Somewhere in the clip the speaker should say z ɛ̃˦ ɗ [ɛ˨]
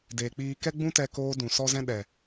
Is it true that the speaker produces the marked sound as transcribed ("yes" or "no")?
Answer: yes